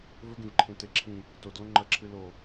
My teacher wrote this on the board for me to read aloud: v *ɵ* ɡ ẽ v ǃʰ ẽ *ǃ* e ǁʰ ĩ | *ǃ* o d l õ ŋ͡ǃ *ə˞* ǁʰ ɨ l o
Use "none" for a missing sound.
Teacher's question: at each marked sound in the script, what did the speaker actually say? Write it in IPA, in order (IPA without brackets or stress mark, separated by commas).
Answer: ɵ, t, t, ɐ